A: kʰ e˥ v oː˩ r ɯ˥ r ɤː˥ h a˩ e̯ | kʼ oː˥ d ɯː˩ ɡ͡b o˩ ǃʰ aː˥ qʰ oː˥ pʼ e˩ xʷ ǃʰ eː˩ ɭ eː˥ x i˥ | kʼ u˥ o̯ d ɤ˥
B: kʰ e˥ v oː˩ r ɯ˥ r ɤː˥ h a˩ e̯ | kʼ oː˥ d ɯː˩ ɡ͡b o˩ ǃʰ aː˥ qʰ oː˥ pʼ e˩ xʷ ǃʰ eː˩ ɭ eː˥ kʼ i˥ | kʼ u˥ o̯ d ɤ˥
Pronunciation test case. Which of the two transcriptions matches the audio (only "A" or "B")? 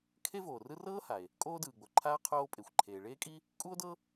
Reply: B